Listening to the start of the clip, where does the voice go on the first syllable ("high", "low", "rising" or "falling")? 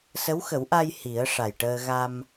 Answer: rising